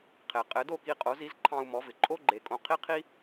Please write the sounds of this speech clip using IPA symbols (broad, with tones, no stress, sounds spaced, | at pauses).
qʰ e˩ qʼ ɘ˩˥ d o˥˩ k i˧ qʼ o˩˥ z i˩˥ z ǃʰ ɑ̃˧ u̯ m ɔ˩˥ v ɪ˩ ǃʼ o˥ ɡ͡ǃ e˩˥ kʼ õ˧ qʰ i˥ qʰ i˥